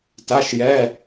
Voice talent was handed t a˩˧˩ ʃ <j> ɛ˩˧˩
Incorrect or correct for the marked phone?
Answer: correct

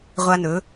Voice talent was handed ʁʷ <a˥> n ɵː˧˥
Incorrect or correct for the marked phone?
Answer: correct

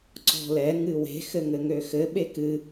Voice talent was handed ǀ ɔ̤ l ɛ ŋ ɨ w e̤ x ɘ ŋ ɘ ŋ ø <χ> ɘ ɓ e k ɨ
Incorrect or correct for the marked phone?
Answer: incorrect: x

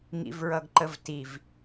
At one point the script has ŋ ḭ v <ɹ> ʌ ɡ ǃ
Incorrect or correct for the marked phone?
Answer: correct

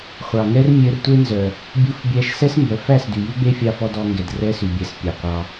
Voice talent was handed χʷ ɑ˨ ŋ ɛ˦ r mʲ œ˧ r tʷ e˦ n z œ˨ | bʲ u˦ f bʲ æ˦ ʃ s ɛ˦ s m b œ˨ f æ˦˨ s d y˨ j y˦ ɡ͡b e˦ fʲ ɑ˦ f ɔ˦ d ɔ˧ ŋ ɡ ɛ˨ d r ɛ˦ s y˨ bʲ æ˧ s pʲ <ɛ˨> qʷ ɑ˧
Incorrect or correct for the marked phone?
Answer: incorrect: e˨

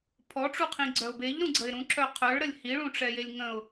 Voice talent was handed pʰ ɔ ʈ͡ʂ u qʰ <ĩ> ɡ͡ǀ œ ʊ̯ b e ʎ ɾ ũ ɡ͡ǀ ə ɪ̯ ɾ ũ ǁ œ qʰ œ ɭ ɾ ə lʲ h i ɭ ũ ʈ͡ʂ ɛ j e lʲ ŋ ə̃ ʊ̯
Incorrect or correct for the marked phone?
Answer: correct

